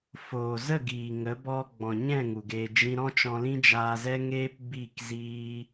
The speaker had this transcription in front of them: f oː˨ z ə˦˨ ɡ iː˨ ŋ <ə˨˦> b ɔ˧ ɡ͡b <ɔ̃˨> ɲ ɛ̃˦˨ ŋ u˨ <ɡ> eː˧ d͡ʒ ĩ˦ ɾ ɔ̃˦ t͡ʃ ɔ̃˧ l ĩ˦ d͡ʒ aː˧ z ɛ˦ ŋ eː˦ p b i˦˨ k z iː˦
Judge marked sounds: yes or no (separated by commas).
yes, yes, yes